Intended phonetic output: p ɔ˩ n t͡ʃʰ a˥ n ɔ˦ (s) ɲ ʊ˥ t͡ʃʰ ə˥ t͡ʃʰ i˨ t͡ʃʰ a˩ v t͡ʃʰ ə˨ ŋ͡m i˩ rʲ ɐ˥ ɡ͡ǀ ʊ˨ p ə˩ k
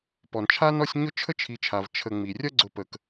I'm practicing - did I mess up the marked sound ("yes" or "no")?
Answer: yes